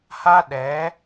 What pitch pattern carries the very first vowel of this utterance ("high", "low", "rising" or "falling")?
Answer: high